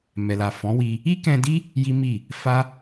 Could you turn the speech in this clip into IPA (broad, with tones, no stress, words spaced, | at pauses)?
mɛ˨la˨ fɔ̃˨˦wi˧ | i˦kɛ̃˧di˦ | ji˦ mi˦˨ | fa˦